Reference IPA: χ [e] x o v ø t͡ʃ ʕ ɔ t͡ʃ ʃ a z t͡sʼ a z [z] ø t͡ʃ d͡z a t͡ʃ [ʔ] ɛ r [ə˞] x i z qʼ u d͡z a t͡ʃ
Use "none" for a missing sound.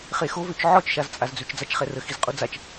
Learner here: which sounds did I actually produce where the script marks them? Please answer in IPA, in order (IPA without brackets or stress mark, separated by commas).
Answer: e, d͡z, χ, ə